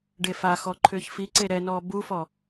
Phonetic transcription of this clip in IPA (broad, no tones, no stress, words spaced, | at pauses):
ɖefaxɔ ǃʰʏːçfiǀe ɾɛnɔː bufɔ